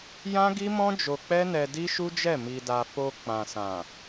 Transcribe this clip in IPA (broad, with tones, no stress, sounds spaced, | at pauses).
j ã˦ ɡ i˦ m ɔ̃˦ d͡ʒ o˧ k͡p ɛ˦ n ɛ˧ d i˦ ʃ u˦ d͡ʒ ɛ˦˨ m i˧ d a˧ f o˧ k͡p ã˨ s ã˨